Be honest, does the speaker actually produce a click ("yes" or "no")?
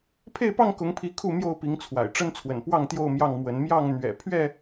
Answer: no